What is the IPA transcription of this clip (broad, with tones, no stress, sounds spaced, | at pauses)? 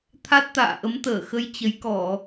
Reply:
t̪ʰ a˦˥ t̚ t̪ a̰ː˧˨ ʔ ə˨˦ m t̪ əː˧˩ x ə˨˦ j t͡ɕ ə˨˦ j k ɔ˧˩˨